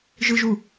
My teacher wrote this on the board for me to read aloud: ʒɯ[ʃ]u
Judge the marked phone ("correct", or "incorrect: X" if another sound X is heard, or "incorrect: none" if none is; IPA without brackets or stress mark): incorrect: ʒ